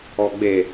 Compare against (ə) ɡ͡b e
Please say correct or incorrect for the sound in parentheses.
incorrect